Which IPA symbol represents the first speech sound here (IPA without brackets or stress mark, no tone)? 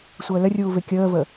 sʷ